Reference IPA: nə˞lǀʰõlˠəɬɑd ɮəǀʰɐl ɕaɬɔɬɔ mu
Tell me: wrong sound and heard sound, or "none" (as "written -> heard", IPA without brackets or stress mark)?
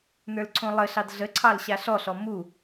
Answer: ɐ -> ɑ